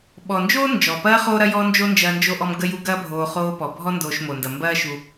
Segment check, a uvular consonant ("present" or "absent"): present